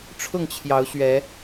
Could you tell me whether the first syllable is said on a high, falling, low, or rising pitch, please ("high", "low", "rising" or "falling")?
falling